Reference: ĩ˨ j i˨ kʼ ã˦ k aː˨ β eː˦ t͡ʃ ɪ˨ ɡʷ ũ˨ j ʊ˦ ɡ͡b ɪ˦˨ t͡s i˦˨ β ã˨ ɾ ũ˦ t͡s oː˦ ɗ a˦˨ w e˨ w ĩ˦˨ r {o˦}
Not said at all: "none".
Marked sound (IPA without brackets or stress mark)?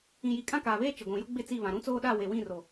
o˨